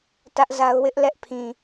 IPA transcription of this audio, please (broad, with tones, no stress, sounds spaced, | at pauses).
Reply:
t ä˦ ʔ z a˦ ʊ̯ w ɪ˦ ʔ l ɛ˦ ʔ pʰ ĩ˨